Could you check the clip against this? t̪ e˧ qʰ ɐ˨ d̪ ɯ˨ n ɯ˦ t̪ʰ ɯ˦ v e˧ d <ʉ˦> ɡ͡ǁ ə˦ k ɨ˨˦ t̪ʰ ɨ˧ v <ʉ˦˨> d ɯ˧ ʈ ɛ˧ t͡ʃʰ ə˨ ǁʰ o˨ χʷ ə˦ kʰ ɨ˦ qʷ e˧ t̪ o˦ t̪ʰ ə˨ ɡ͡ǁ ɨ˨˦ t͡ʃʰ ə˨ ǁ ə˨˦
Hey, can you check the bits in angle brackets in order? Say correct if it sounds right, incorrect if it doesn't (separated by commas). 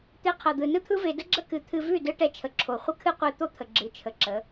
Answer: incorrect, correct